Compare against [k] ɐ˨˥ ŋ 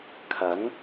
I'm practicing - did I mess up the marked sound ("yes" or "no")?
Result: yes